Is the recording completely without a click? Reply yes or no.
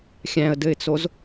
yes